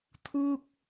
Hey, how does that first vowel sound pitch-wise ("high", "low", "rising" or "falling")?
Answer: falling